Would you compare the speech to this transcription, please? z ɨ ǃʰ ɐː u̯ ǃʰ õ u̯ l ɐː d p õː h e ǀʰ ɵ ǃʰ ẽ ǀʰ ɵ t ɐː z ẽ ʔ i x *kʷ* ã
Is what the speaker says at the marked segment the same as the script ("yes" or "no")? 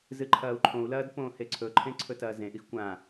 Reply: yes